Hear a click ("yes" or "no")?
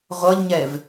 no